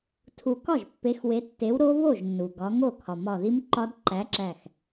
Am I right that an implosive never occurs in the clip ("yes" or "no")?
yes